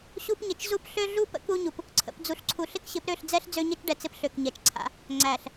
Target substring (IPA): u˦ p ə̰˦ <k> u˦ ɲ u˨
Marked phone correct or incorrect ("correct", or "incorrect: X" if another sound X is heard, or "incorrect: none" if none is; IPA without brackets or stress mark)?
correct